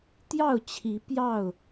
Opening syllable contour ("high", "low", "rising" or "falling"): falling